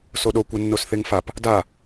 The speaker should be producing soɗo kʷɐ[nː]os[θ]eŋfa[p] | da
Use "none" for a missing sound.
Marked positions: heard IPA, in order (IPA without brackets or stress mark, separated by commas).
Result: nː, θ, p